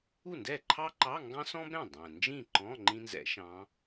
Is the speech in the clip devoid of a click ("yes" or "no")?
no